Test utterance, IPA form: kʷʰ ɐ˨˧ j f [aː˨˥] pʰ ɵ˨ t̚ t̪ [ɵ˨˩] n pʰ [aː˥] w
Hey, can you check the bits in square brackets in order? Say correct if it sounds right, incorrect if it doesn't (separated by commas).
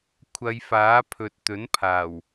correct, incorrect, incorrect